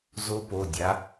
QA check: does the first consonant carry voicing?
yes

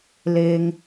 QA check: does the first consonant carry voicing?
yes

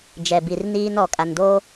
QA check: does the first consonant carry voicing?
yes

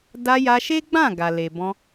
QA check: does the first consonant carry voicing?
yes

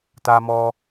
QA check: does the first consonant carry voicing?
no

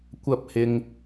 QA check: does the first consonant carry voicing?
no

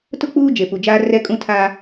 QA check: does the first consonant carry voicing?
no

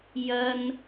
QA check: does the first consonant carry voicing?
yes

